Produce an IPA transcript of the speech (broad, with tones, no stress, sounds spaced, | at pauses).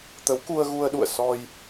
t̪ ə˨˦ w k u˧ ə̯ ɣ u˧ ə̯ ɗ ṵ˧˨ ə̯ s ɔ˧ j